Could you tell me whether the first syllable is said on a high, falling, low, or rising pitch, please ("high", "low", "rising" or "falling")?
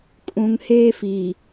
low